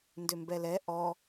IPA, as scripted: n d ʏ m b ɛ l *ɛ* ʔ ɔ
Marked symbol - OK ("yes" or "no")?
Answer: yes